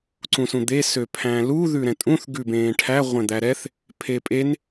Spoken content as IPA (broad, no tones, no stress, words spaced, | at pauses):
ǀũsũd̪e søpʰæ̃lu ðʉɾɛ̃tʼũθ ɡʉbẽːʈʰæ ʁʷɛ̃d̪æɾɛθ | pʰepʼen